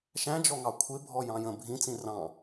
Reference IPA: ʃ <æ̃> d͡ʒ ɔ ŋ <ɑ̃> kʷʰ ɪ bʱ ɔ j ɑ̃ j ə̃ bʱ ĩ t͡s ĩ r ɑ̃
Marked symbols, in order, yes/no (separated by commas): yes, no